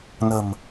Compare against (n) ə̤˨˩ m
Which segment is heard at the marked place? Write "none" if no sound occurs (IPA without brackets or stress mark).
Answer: n